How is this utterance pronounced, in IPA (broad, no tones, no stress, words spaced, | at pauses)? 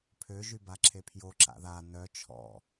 pʰø ʒybaǁʰepʰjo ǁa̰ða nœ t͡ʃʰɔ̰